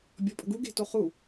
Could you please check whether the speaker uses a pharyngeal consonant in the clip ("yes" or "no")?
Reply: no